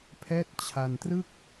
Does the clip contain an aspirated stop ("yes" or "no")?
yes